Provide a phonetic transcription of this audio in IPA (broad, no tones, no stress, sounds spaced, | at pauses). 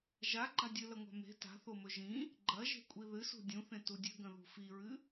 ʒ a ɡ͡ǃ a dʲ ɨ l ɐ ŋʷ a̤ m e̤ t a̤ θ o m ɵ ʒ ĩ | ɡ͡ǃ ɐ ʒ e̤ kʷʼ i ð ɨ s ṳ dʲ ũ θ ẽ t u dʲ ʉ ɡ ɐ̃ ð ṳ f i ɹ ɨ